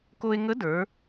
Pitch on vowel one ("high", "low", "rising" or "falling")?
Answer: high